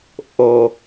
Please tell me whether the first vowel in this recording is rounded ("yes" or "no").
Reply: yes